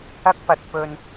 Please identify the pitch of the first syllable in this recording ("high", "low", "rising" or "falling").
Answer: high